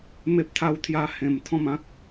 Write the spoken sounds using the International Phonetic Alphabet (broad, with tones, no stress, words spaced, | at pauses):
me˦p̚t̪ʰa˦wt̪ʰja˦ hẽ˧mt̪ʰɔ̃˥˧mã˦k̚